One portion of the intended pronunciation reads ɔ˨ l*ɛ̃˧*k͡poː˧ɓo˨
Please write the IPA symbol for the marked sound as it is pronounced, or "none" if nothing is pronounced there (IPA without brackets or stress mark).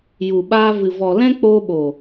ɛ̃˦